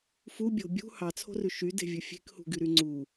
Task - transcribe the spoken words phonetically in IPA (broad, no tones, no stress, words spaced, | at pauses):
fubʲo̤ bʲṳ hɑt͡sʰo̤rʉ ʃyde̤vʲɵ fʲe̤khṳɡyɾy ŋ͡ǀu